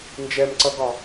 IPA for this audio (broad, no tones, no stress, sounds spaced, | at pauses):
n d͡ʒ ɛ m ǀ ʌ ɡ ɒ